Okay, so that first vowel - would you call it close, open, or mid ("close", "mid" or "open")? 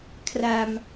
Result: open